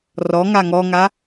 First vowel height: mid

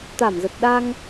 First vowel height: low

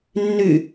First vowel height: high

